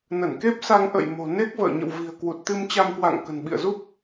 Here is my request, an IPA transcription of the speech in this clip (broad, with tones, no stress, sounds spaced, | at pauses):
n ə˧˩ n k e˦˥ p̚ s a˧ ŋ ʔ ə̰˧˨ j m o̤˨˩ n e˦˥ k̚ v ə̰ː˧˨ ɲ ə̰˧˨ w v i̤˨˩ ə̯ k w u˨˩ t̚ t̪ ɨ˧ m t͡ɕ a˧ m k w a̰˧˨ ŋ k ə̤˨˩ n ɓ ḭ˧˨ ə̯ z u˦˥ p̚